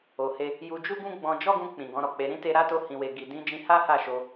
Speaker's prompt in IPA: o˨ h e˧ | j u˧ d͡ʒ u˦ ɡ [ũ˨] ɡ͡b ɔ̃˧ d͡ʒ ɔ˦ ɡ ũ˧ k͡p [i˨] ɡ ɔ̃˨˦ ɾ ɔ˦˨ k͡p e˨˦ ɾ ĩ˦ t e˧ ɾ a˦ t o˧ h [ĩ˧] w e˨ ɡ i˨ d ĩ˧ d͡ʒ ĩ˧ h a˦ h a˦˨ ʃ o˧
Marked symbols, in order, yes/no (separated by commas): no, no, no